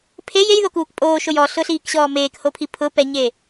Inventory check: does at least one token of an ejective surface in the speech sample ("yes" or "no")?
yes